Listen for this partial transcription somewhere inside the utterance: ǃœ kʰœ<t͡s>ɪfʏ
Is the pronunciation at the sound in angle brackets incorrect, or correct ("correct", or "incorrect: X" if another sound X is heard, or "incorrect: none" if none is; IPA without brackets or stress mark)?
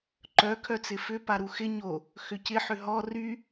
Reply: correct